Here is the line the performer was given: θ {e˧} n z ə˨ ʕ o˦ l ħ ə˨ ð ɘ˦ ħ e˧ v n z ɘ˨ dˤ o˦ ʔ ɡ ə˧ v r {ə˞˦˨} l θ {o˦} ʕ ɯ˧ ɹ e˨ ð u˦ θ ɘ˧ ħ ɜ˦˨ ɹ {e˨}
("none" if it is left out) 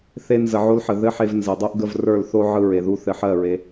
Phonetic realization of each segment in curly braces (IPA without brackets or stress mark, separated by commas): e˧, ə˞˦˨, o˦, e˧